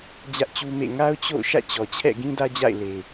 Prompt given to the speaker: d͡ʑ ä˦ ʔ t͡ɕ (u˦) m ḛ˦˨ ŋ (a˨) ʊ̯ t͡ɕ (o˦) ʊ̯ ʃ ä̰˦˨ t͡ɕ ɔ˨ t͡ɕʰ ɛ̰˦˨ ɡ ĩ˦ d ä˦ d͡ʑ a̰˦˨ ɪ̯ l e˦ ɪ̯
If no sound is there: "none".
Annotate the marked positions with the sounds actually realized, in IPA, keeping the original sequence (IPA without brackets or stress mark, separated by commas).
u˦, a˦, o̰˦˨